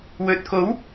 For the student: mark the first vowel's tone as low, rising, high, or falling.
low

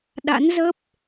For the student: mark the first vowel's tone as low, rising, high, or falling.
rising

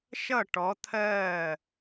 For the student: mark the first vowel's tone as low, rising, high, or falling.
falling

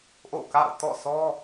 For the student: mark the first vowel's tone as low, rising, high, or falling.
falling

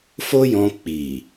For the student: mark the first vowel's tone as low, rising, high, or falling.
high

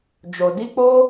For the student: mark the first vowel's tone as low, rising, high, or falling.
low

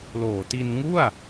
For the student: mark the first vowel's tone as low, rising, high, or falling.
low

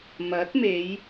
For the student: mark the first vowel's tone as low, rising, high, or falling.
rising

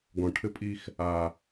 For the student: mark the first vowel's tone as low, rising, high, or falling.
low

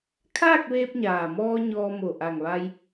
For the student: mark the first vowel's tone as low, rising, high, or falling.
falling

